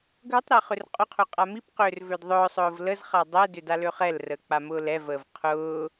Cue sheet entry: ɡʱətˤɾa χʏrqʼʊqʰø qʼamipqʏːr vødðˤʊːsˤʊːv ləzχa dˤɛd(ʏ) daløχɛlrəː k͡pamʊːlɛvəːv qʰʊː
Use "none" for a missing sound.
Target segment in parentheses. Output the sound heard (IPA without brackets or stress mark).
ʏ